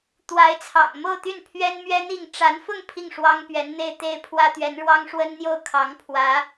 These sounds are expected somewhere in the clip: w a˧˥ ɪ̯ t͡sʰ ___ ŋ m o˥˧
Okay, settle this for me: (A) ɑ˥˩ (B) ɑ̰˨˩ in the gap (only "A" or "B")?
B